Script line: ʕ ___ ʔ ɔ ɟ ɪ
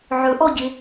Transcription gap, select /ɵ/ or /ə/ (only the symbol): ɵ